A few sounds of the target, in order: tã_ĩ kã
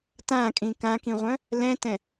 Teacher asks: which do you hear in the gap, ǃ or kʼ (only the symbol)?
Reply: kʼ